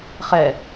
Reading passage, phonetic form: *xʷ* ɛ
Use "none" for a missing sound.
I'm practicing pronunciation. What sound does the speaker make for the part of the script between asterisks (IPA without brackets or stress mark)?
χ